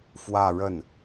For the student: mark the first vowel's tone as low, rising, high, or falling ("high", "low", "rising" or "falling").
falling